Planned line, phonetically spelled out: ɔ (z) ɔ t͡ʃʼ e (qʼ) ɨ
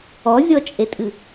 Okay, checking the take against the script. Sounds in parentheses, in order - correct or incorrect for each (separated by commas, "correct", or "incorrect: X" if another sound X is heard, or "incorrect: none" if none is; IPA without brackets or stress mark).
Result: incorrect: zʲ, incorrect: tʼ